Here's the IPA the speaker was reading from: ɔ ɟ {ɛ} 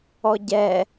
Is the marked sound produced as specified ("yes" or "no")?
yes